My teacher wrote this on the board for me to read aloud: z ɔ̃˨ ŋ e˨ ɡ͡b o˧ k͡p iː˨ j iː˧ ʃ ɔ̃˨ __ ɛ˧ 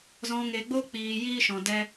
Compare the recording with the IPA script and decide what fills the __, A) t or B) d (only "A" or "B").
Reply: B